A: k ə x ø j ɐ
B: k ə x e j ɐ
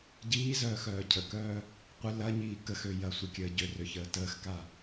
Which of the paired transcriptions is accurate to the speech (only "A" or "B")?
A